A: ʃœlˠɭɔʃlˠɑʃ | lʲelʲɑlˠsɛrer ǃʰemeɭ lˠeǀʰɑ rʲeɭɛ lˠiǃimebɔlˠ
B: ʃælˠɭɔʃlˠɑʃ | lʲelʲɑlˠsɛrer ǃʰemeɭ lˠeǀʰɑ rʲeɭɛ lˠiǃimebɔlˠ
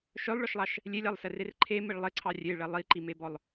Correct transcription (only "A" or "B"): A